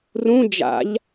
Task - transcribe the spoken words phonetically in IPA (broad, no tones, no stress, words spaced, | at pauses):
rũ d͡ʒa̰ʎ